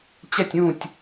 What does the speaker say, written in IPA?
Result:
t͡ɕɛ˥˧tʲũː˥˧tʲ

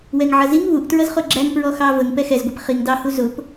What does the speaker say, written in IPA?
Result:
wɛŋʕʌziŋ βuʔtɹʌzχʊ ɡ͡ǁæŋpɹɔ xɑvəŋ pɛxɛzɡʷip χiŋ dɑhu zʊp

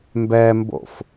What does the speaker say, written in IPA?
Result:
mbɛmbo̰f

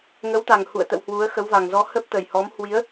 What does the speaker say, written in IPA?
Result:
ŋə˨˦wt̪a˨˩ŋ hṵ˧˨ə̯t̪ə̰˧˨w hwu˨˦ə̯ xə˨˦wva˨˩ŋzɔ˧ hə˦˥p̚t̪ə˨˩j hɔ˨˦mhwi˨˦ə̯

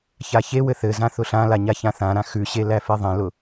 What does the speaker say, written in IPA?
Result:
çaçewɘ θɘzã θʊɬãla ɲaçãθãɾã xʉɕe læfeðˤẽlʊ

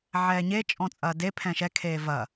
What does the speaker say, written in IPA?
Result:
ʕɛːɲe t͡ʃʼɔ̃t͡sʼɐːde pʰɛ̃ʃɛ kʰeːvɐ

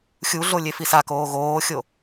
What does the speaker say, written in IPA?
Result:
xʲuɮo lʲefisakoː ɣoːxʲo

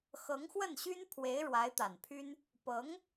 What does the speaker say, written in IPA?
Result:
xɤ˧˥ŋxwə˥˩nɕy˥npʰwe˧˥ɪ̯ ɻwa˧˥ɪ̯t̪a˨˩npʰy˥n | pɤ˧˥ŋ

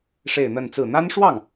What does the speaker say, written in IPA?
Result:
ʂe˥˧ɪ̯n̪ə˥˧nt͡sɹ̩˥˩ n̪a˥nʂwɑ˥˩ŋ

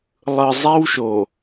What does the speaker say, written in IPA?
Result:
lˠɯ˨ zˤe˦wʃo˨

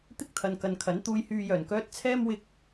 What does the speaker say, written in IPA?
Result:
t̪ɪ˥k̚ t̪ʰɐ˨nkɐ˨nkʰɐ˨˥n t̪uː˧jhyː˧jœː˨˩nkœː˥t̚ t͡sʰɛː˥mwɪ˧k̚

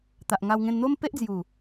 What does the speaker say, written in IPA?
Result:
t̪a˨ʔŋa˧wŋẽ˧nn̪o˦m pe˦ʔd͡zju˨˩

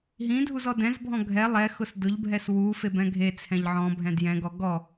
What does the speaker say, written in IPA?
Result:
ɦĩdʱuzɔ dɛ̃zbʱɔ̃ ɡʱɛ lˠɛxʊs dʊʎbʱɛs wufebɛ̃ ɡʱet͡sʰɛ̃ʎ ʕɔ̃bʱɛ̃ djɛ̃ɡɔ ɡɔ

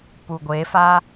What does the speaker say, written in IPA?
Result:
puɡʷefa

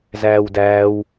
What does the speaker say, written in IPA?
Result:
zæːwdæːw

